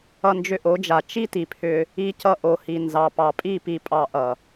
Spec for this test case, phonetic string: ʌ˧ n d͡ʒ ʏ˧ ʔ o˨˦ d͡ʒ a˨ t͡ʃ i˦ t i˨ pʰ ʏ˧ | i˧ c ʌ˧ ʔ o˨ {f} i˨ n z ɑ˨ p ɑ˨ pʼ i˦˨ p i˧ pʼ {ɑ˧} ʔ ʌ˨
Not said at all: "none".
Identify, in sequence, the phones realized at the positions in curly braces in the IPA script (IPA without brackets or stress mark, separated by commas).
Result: h, ɑ˧